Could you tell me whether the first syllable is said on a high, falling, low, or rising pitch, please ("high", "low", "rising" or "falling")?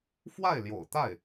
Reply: falling